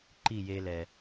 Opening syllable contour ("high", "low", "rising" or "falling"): falling